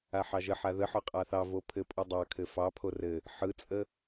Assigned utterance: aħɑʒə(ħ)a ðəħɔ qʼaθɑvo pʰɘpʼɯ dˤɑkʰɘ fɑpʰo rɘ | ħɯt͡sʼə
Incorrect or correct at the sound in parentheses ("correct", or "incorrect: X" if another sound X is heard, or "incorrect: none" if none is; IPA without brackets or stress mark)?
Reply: correct